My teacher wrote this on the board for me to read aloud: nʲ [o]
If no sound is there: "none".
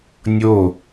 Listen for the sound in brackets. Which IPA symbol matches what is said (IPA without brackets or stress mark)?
o